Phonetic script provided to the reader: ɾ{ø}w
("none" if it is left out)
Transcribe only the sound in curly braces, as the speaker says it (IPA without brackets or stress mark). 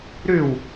ø